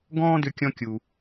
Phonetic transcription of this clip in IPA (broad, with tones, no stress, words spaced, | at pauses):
ɡɔ̃ː˥dʏ˧kʲɔ̃˧kʲu˩